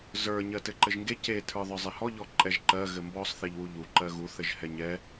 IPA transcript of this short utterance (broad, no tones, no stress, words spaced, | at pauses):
zə˞ ɲɜtɘǃɘʒŋɡe ce tʰə˞ðˤə˞zˤehɔ ʎɔǃʼɛʒǃɜ ɣɘmbɔsˤ θeʎwuʎu ǃɜɣu θɘʒhɛɲɛ